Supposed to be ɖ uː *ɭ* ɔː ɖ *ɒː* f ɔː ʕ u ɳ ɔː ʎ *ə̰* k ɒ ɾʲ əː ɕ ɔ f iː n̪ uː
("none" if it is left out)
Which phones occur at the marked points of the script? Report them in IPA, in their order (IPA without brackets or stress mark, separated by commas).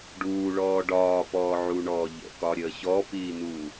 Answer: ɭ, ɒː, ə̰